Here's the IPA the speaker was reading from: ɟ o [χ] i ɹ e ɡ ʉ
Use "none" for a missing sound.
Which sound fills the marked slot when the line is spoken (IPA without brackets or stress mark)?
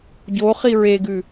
χ